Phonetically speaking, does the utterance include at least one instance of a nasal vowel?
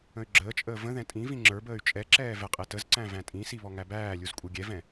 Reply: yes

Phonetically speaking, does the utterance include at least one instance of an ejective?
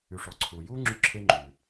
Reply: no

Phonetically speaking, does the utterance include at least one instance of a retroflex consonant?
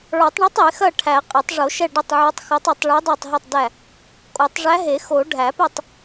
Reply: yes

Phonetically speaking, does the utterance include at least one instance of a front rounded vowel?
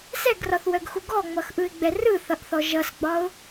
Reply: yes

